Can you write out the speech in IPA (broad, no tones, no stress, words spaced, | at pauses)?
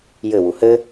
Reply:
jɘ wuhɘ